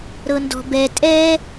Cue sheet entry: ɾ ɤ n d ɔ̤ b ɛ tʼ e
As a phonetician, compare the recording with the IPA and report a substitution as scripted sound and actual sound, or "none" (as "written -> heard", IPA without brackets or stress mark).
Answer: e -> ɛ